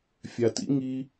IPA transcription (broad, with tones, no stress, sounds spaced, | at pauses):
fʲ a˨ t ḭ˧ ŋ i˧